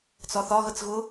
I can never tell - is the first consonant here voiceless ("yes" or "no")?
yes